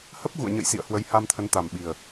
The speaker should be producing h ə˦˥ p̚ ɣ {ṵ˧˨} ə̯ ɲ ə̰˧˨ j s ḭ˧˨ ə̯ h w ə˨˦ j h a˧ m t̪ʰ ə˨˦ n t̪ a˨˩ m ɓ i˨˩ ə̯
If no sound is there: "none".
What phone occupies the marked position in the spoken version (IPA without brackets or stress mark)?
ṵ˧˨